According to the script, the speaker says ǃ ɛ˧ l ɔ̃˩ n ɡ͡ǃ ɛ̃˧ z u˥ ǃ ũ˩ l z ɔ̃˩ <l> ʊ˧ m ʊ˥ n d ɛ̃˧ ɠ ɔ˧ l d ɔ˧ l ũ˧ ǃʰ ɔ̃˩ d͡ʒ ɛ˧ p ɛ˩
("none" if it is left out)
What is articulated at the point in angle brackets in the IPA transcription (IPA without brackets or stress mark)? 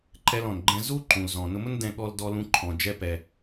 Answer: n